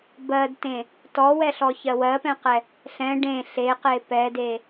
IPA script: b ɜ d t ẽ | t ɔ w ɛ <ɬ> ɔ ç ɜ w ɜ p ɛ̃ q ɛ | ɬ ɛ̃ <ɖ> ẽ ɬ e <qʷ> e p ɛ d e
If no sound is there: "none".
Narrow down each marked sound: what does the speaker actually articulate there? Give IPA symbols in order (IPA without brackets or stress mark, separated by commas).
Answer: ɬ, ɖ, q